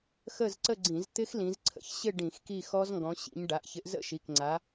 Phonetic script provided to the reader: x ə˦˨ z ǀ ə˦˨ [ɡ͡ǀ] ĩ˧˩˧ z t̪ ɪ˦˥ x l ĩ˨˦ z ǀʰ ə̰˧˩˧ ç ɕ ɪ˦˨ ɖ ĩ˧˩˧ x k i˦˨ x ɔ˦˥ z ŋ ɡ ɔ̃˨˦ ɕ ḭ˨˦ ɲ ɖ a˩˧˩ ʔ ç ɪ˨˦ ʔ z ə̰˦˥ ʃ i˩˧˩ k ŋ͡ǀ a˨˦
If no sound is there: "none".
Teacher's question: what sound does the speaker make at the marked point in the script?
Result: ɡ͡ǀ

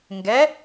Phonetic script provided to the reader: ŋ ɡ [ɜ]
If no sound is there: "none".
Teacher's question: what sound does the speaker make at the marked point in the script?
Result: ɛ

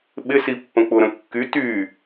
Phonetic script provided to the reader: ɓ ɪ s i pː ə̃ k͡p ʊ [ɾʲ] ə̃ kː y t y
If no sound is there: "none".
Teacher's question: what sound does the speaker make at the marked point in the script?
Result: ɾ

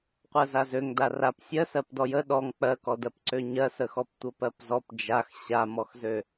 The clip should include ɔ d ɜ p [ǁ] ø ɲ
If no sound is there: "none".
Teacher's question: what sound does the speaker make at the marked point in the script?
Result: ǀ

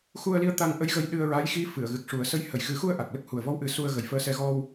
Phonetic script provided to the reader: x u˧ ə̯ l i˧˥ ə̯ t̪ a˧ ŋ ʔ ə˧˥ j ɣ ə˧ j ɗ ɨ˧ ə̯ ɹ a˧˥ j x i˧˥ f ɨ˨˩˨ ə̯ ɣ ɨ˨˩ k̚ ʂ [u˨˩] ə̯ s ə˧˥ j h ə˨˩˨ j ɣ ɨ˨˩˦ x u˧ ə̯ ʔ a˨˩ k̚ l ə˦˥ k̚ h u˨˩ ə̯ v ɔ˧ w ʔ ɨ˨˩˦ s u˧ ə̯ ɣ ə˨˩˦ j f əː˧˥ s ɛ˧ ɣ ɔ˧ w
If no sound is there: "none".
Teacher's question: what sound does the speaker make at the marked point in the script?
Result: u˨˩˦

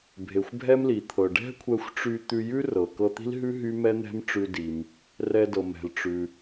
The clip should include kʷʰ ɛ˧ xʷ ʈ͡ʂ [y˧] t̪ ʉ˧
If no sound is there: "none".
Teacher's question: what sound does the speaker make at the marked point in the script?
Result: y˧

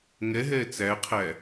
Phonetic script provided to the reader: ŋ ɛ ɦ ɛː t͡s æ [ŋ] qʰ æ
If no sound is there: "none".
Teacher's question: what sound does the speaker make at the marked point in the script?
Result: none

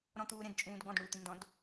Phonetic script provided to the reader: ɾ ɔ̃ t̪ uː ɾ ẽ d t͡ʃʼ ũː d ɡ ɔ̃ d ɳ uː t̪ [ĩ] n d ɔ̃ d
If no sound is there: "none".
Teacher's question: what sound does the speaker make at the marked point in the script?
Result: ĩ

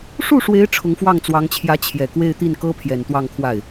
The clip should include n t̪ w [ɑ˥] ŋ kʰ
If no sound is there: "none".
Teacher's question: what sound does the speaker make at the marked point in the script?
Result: ɑ˥˧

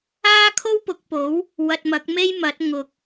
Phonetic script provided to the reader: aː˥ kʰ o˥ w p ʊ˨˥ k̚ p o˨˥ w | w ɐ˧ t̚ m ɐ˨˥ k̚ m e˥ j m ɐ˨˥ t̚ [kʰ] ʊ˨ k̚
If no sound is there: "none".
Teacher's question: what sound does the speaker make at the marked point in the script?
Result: ŋ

